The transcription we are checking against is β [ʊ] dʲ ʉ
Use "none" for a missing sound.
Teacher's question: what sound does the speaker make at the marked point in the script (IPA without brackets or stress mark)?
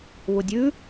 ʊ